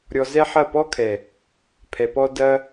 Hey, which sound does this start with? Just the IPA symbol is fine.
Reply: ɾʲ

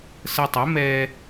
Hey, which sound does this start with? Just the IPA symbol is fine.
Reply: s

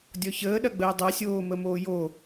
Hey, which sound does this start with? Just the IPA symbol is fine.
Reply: dʲ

